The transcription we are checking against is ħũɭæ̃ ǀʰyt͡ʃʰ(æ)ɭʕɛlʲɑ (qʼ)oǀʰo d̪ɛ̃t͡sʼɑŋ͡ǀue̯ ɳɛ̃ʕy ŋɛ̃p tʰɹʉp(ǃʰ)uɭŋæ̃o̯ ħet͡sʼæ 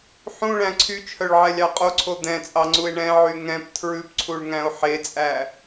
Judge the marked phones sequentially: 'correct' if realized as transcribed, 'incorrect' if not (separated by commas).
incorrect, correct, incorrect